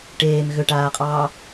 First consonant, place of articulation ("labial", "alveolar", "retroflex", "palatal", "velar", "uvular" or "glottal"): retroflex